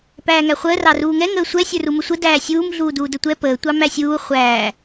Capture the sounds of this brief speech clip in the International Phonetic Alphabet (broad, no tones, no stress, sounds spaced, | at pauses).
p æː ŋ æ χʷ əː r ɑ r uː ŋ ɛ ŋ əː sʷ ɛ sʲ ə˞ r u m ə sʷ ə d æː sʲ uː m ɮ uː d uː d ə tʷ ɛ p əː tʷ ɑ m æ sʲ uː χʷ æː